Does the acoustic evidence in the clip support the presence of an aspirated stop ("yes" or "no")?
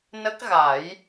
no